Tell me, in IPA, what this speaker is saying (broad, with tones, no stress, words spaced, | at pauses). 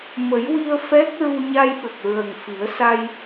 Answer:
mə˨˩˦jwi˧ə̯ fɛ˦˥k̚ ɹu˧ɲa˧jɓə˨˩k̚ ɹə˨˩ŋ fi˨˩˦ə̯sa˧j